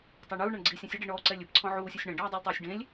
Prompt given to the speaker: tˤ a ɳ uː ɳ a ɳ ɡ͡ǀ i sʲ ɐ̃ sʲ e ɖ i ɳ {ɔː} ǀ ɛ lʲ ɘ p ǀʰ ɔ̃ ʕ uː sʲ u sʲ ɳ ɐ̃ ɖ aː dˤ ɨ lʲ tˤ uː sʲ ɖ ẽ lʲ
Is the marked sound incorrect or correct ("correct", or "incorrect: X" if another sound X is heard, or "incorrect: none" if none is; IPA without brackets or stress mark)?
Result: correct